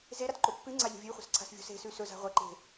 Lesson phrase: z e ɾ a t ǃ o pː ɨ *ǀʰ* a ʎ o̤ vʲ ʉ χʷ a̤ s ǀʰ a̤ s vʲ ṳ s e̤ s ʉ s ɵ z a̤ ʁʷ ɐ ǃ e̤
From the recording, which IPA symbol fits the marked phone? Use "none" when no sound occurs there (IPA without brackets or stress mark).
ŋ͡ǀ